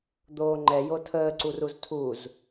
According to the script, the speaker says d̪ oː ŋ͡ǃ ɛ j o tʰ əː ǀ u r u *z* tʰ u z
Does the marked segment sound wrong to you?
no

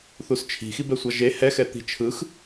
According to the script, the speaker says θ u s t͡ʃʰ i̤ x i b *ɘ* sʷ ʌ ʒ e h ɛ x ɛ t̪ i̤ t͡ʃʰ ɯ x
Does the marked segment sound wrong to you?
yes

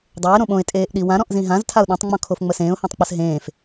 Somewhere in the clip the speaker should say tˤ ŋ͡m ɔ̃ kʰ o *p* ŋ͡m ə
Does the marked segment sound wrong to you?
yes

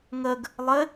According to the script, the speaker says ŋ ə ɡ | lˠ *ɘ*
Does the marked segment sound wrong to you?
no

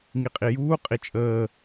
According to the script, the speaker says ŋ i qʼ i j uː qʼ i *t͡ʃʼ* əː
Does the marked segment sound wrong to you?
no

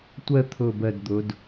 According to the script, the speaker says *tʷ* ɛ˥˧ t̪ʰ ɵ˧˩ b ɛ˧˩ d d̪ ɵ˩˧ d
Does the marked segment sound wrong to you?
no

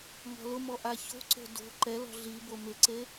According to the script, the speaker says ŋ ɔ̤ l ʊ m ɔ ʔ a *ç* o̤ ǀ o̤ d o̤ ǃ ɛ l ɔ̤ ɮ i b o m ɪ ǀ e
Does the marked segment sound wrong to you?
no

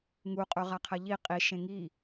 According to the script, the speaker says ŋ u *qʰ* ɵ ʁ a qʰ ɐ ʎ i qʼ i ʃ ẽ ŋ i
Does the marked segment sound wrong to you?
yes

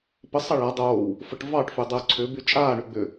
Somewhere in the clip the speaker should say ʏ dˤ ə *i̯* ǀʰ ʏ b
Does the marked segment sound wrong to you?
yes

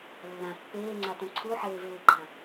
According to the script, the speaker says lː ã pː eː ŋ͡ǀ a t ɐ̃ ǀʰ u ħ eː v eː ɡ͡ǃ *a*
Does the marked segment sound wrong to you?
yes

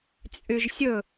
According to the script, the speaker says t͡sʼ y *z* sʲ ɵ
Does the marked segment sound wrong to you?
yes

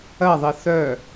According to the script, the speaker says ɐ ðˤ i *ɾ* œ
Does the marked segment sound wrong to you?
yes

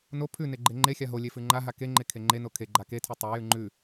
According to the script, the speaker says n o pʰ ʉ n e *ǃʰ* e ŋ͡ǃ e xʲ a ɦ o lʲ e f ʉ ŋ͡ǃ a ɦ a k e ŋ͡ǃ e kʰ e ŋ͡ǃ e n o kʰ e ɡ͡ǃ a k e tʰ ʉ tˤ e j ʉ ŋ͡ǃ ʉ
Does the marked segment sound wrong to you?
yes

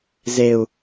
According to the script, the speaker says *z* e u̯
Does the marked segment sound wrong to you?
no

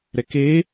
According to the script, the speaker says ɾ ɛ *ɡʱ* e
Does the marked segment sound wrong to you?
yes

